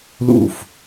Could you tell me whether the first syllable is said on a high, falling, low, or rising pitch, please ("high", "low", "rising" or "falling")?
falling